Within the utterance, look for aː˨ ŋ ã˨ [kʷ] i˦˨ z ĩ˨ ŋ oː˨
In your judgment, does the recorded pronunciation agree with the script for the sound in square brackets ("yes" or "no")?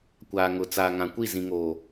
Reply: yes